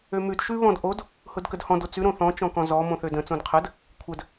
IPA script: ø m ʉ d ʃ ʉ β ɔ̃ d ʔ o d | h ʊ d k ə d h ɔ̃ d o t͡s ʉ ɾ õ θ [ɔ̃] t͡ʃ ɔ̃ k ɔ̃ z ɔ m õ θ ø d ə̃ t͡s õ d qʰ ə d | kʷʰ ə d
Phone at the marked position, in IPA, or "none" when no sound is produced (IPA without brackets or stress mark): ɔ̃